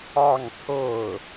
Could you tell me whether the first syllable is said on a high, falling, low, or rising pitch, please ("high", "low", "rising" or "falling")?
falling